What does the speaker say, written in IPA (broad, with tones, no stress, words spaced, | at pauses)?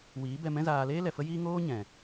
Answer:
wiː˨˦ bɛ˧mɛ̃˦zaː˧ leː˦lɛ˨fə˦jiː˦ ŋoː˦ɲɛ̃˨